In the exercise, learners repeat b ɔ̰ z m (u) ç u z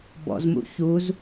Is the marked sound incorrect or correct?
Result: incorrect: ṵ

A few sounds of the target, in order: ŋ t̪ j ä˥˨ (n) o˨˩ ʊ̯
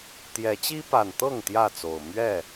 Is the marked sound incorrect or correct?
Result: incorrect: t͡s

